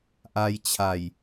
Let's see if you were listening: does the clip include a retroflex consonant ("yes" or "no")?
no